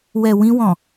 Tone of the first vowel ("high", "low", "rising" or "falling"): low